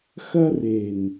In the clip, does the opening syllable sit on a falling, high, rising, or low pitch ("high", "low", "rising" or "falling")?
high